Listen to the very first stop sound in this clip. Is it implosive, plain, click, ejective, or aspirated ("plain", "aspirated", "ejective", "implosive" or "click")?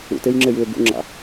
plain